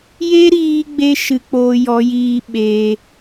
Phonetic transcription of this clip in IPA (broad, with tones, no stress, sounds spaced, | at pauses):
j e˦ ɾ iː˧ ɡ͡b e˧ ʃ ɨ˧ k͡p oː˧ j ɔ˨˦ j iː˧ ɓ eː˧